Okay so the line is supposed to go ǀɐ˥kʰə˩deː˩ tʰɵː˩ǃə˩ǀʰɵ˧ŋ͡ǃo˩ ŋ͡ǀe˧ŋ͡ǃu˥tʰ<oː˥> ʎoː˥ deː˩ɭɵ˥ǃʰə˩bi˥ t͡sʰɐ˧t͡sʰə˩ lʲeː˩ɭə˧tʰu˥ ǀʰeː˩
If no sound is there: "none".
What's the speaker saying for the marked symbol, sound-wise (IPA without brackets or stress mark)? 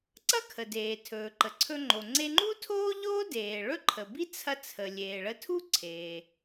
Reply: oː˥